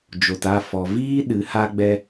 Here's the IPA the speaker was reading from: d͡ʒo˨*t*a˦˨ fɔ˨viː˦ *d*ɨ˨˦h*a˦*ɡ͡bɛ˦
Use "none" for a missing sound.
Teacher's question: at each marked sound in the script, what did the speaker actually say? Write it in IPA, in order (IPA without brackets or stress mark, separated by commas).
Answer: t, ɗ, a˦